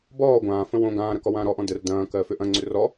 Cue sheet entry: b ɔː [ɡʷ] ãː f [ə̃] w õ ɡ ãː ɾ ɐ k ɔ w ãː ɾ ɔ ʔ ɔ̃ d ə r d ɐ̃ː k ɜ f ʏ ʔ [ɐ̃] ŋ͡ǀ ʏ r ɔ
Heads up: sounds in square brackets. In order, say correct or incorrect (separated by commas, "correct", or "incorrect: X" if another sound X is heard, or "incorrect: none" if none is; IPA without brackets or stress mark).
correct, correct, correct